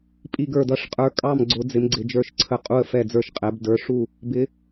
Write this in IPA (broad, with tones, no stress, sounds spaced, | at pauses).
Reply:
pʼ i˥˨ ɡ ə˞˥˨ d ʌ˥˨ ʂ qʼ ə˞˨˦ kʼ ɑ˥˨ m ɡ͡ǀ ʊ˨˦ d͡z ɪ˨˦ m ɡ͡ǀ ɪ˨˦ d͡ʒ ə˞˥˨ ʃ ǀʰ ə˥˨ qʼ u˥˨ ə̯ f ɛ˥˨ d͡z ə˞˥˨ ʃ qʼ ɛ˨˦ b d ə˞˨˦ ʂ u˥˨ | b ɪ˨˦